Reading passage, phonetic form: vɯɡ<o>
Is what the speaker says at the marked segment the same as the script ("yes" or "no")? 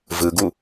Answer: no